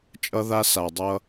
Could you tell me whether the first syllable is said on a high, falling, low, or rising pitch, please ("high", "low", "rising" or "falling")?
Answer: high